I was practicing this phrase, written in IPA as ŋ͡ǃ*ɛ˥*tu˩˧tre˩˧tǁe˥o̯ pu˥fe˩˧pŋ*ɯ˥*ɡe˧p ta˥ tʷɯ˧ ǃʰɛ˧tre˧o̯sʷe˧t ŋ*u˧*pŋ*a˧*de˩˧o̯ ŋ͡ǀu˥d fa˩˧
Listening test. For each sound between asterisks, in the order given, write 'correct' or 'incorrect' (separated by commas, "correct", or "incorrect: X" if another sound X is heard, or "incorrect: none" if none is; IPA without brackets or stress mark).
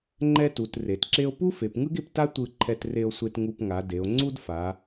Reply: correct, correct, correct, incorrect: a˩˧